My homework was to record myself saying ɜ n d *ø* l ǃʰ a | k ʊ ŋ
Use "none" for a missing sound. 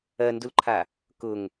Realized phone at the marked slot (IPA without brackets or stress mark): u